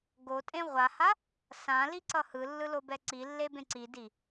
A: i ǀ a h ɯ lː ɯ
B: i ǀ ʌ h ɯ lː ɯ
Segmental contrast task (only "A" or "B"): B